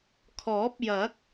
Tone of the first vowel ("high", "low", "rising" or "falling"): rising